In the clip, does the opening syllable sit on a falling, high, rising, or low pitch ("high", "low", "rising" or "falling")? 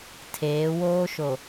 rising